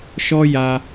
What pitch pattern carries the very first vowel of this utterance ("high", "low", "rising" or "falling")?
high